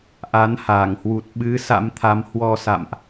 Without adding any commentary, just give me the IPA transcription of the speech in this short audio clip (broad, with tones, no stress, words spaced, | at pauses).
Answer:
ʔa˨˦nhaː˧˩ŋhwu˨˩t̚ ɓɨ˨˦ sa̰˧˥mt̪ʰa˨˦m hwɔ˧sa̰˧˨mʔ